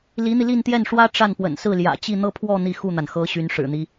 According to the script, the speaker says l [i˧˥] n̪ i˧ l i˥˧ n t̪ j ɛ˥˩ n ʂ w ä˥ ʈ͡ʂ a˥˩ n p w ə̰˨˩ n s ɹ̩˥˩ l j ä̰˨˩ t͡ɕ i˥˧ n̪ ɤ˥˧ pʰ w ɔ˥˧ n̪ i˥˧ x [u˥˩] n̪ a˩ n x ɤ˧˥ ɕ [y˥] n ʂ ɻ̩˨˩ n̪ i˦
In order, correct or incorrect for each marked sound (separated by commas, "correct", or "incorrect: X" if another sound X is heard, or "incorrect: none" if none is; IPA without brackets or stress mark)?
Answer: correct, correct, incorrect: y˧˥